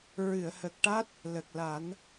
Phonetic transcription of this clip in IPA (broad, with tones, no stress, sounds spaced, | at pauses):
ɹ ɨ˨˩˨ ə̯ h ə˨˩ k̚ ʈ a˦˥ t̚ | l ə˨˩ k̚ l a˨˩˦ n